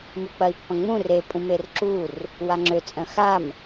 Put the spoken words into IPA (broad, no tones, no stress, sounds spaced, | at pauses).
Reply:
m u k͡p ɐ i̯ pː ɐ̃ ŋ͡m ũ r e pʼ ũ m e r ǁ u r | w a ŋ͡ǁ ø t͡sʼ œ̃ x a m